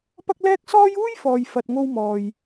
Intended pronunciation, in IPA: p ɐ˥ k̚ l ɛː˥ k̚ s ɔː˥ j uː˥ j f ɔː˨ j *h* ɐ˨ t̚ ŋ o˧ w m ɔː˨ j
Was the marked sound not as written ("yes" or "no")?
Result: yes